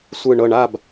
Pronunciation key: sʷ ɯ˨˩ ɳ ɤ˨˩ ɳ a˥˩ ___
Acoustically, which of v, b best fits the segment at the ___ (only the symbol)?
b